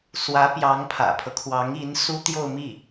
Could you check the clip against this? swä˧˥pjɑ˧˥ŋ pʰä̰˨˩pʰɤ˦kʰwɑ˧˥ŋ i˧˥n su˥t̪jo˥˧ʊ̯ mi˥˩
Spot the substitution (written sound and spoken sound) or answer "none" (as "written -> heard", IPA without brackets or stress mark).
none